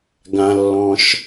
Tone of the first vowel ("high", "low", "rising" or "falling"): low